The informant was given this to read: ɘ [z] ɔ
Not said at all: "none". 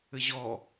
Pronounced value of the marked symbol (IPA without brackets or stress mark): ʑ